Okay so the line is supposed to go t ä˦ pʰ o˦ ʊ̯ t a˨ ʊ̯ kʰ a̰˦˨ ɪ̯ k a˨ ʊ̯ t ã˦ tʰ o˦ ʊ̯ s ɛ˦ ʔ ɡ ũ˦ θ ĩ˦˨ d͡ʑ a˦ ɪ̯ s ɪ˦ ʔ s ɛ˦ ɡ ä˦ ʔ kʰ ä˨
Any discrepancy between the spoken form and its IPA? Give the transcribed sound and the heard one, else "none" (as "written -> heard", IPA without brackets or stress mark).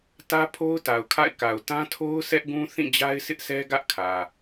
none